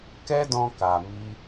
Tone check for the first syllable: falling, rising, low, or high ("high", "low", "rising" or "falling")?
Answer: high